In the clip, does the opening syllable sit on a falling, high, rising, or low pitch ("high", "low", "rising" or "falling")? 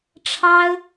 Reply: high